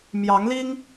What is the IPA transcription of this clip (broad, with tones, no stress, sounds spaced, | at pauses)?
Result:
m j ɑ˧˥ ŋ l i˥ ŋ